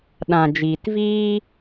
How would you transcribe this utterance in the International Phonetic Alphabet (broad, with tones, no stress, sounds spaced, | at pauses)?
ɗ ã˨ d͡ʒ iː˨ t v iː˦